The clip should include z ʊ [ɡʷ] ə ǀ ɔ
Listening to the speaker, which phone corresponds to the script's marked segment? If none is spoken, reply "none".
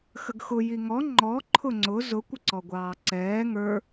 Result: kʷ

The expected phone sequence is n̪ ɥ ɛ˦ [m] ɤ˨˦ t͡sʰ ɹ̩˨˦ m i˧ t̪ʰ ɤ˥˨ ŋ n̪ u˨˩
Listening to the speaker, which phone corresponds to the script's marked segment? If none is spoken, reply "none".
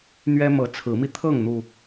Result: m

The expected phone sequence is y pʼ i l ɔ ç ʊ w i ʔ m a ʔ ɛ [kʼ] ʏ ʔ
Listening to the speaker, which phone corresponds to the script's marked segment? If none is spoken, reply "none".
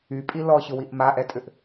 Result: tʼ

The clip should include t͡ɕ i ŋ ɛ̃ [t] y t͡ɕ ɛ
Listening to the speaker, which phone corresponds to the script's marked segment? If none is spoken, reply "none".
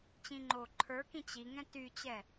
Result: t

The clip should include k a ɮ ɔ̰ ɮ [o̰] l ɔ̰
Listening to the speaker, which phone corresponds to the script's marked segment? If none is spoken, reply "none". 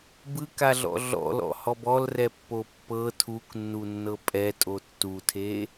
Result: ɔ̰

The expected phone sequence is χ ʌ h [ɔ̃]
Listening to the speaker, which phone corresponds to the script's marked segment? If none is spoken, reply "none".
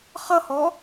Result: ɔ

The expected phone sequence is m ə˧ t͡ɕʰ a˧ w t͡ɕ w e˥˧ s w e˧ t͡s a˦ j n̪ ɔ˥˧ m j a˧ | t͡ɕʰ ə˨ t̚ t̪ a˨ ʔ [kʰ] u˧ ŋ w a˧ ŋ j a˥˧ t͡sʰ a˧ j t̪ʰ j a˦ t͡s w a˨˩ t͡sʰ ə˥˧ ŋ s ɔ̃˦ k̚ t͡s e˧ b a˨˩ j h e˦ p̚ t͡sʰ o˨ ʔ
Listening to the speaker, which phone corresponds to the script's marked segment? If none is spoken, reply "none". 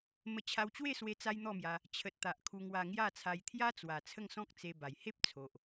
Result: kʰ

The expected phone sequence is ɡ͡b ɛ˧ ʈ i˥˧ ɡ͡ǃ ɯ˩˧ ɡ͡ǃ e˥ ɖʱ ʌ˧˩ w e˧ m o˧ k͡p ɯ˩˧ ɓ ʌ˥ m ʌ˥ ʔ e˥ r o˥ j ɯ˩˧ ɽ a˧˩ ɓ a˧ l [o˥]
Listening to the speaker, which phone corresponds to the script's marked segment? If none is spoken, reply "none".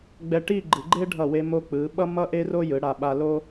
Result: o˥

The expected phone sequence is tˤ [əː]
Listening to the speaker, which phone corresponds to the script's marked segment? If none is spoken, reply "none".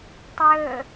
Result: ɵː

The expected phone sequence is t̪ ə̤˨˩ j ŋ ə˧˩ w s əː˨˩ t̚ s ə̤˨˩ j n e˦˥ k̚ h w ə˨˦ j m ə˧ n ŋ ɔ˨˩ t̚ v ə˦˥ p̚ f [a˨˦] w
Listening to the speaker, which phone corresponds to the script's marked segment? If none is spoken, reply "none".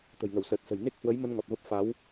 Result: a˨˦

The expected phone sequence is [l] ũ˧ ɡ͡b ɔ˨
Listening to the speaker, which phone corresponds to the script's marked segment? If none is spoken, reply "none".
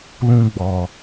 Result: l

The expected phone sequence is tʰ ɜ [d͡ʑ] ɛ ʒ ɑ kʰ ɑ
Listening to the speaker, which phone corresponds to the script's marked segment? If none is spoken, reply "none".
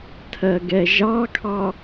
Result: ɡ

